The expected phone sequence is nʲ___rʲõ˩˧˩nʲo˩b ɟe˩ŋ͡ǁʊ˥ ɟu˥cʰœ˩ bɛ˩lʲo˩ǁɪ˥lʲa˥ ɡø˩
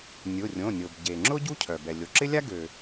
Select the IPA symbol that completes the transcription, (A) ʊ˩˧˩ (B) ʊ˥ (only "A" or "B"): A